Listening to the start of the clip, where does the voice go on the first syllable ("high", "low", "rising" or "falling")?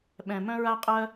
low